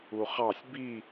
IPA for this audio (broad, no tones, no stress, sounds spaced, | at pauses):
u χ ɑ sʲ b i